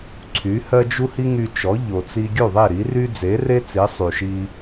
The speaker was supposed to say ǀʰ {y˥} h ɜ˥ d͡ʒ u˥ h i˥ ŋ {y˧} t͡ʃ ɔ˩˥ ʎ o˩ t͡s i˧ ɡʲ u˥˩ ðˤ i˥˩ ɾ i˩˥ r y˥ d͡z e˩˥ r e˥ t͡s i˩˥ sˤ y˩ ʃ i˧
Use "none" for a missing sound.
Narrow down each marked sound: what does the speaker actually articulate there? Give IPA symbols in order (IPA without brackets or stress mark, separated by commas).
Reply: y˩˥, y˧